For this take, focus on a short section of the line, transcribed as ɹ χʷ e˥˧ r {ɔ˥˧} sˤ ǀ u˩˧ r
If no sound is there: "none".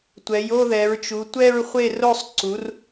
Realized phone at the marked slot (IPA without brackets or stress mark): o˥˧